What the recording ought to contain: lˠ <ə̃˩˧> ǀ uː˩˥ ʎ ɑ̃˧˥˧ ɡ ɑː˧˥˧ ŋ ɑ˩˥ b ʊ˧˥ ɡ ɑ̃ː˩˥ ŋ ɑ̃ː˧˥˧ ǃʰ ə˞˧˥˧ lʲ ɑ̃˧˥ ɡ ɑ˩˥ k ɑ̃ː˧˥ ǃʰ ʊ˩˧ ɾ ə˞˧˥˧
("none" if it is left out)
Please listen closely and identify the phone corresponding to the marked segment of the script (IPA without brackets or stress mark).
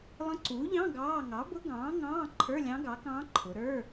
ə̃˧˥